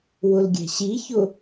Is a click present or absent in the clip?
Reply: absent